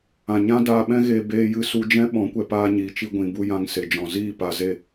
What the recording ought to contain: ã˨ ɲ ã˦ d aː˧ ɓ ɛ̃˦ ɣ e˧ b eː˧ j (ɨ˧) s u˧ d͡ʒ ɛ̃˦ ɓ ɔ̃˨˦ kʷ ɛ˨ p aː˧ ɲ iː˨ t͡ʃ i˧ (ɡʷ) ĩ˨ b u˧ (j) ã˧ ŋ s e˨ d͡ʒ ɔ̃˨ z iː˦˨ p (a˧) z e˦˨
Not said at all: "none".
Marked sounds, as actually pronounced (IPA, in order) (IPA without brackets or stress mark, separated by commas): ɨ˧, ɡʷ, j, a˧